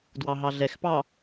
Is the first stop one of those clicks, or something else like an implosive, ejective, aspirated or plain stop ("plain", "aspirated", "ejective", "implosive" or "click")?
plain